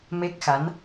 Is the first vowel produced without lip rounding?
yes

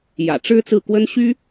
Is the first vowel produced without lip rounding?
yes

